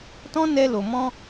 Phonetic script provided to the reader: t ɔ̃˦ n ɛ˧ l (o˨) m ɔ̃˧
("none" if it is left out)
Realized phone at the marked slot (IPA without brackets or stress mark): o˨